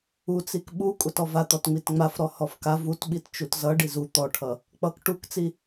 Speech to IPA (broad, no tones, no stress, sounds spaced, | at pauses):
u t͡s i k ɓ u kʷʼ a t ɔ v a t̪ ɔ t ŋ͡m i t ŋ͡m a f ɾ ɔ h ɔ f k a v u t ɓ i t t͡ʃ u t z ʌ ɖ i z u t̪ ɔ ʈʰ ʌ | k͡p ʌ k ʈ u k t͡s i